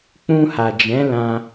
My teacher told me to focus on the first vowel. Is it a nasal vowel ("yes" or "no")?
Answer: yes